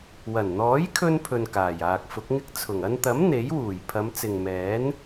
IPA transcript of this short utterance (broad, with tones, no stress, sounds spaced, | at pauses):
w ɐ˨˩ n n̪ ɔː˨˥ j kʰ ɵ˧ n pʰ ɵ˨ n k aː˨˩ j aː˨ k̚ f ʊ˨˥ k̚ ŋ ɪ˥ k̚ t͡sʰ ʊ˨˩ ŋ ɐ˧ n t̪ ɐ˨˥ m n̪ e˨˥ j w uː˨˩ j pʰ ɐ˨˧ m t͡s ɪ˨ ŋ m ɛː˨˥ n